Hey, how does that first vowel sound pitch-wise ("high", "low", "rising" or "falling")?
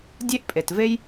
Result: high